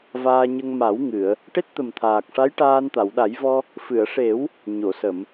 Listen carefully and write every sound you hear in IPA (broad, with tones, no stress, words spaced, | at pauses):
vaː˧ɲə˧ŋ ma˨˩˦w ŋɨ˨˩˨ə̯ | ʈe˦˥t̚t̪ə˨˩mt̪ʰaː˨˩k̚ʂa˧˥j ʈaː˧nt̪a˨˩˨wɗa˨˩˦jvɔ˧ | fɨ˨˩˨ə̯ʂe˨˩˦w | ɲo˨˩˨sə˨˩˨m